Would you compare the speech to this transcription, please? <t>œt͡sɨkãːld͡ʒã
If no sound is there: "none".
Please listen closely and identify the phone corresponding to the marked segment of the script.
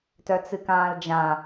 t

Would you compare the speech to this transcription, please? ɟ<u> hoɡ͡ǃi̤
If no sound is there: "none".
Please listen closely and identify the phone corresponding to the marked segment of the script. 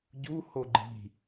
u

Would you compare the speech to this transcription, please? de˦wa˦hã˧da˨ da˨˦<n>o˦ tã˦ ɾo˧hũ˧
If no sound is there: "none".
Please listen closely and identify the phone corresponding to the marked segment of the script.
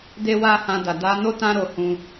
n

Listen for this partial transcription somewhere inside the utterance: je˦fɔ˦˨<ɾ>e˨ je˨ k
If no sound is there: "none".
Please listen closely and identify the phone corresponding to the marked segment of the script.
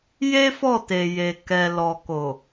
t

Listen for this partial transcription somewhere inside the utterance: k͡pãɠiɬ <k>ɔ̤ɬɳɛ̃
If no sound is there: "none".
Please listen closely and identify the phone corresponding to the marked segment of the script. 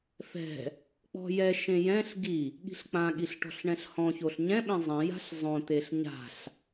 ʈ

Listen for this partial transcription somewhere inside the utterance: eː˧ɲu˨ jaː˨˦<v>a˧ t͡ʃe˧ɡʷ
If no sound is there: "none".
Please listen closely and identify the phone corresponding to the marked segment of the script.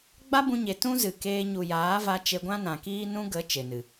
v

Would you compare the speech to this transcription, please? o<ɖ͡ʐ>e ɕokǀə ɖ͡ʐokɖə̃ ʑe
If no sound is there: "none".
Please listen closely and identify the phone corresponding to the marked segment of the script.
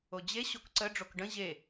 d͡ʑ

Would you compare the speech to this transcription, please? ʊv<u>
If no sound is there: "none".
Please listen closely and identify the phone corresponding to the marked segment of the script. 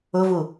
u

